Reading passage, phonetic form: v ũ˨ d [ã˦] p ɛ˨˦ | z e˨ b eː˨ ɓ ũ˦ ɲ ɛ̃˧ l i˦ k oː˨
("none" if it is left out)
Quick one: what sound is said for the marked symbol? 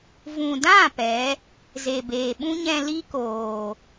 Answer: ã˦˨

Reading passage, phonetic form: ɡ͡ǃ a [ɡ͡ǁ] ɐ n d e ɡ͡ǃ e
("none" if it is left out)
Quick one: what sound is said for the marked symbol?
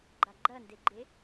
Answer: ɡ͡ǃ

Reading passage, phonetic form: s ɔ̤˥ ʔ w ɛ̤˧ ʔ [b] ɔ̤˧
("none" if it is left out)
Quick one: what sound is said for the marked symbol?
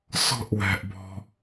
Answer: b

